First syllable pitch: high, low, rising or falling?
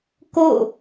falling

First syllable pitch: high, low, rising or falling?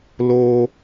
high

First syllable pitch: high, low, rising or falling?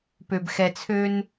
low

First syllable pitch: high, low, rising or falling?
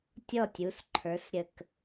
falling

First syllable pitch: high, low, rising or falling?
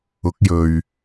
rising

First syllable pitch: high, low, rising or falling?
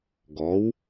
rising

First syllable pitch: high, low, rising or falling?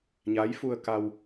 rising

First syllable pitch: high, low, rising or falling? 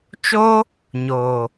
high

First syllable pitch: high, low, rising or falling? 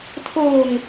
low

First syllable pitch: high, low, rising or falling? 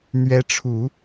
rising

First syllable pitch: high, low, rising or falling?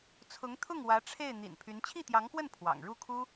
rising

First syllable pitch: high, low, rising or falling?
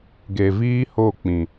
low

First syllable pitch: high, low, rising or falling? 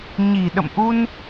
low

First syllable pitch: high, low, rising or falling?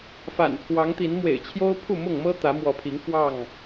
low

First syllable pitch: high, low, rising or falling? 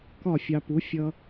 falling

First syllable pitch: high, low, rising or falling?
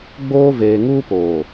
high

